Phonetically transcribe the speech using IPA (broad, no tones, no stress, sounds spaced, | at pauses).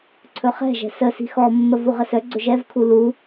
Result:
ǀʰ ɵ χ ɛ̤ ʒ ɛ̤ s ə s i̤ x ɔ mː ə v u ʁ ə s œ ɡ͡ǀ ɵ ʒ ɛ v kʰ u l u